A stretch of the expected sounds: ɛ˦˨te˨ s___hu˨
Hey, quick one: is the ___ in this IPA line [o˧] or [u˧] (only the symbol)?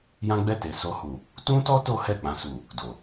o˧